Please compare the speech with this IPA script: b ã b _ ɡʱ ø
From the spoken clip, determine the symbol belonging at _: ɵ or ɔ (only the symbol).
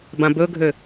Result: ɵ